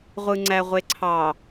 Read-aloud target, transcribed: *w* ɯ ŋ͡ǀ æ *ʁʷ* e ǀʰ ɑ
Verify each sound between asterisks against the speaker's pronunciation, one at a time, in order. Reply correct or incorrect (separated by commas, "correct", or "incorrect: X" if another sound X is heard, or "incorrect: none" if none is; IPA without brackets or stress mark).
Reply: incorrect: ʁʷ, correct